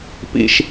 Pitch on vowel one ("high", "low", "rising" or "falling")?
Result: high